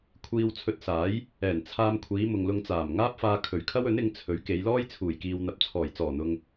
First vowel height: high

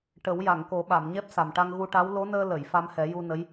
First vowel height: mid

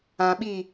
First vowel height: low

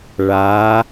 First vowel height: low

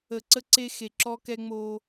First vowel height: mid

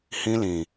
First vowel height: high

